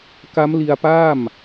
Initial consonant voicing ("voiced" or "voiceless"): voiceless